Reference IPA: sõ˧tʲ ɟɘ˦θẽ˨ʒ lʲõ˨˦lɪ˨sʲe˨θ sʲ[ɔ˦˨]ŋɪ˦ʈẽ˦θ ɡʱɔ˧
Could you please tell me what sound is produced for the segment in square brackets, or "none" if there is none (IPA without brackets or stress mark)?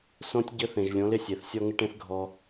ɔ˦